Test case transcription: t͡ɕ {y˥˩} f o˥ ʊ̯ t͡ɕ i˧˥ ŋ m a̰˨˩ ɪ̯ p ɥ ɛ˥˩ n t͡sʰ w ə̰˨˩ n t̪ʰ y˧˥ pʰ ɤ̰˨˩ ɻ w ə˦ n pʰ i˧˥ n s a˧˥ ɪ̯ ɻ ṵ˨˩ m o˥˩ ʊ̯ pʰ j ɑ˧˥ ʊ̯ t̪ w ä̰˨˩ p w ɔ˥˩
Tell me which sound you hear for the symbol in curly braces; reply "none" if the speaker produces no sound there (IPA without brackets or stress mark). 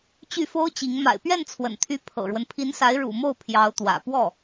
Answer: y˥˩